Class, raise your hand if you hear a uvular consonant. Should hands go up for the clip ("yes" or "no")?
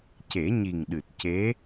no